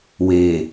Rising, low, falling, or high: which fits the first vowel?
low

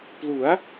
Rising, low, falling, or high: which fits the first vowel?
rising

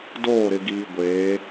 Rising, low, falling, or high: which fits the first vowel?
falling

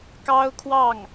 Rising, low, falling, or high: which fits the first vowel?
high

